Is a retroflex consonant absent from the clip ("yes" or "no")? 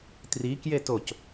yes